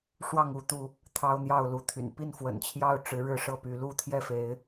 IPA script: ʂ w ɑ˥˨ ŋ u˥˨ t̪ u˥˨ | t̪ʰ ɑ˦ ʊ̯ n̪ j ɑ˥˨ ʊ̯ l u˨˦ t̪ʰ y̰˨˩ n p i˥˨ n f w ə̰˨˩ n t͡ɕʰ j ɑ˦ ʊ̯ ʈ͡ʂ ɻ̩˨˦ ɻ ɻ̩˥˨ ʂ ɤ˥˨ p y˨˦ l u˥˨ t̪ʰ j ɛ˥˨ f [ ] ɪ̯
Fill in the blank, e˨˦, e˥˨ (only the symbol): e˨˦